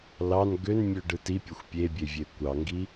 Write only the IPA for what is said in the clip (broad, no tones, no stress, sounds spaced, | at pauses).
l ɑ n ɡ ø n mʲ ø ɖ ɯ t i pʲ o xʷ pʲ e bʲ e vʲ e kʷ ɑ ŋ ɡ i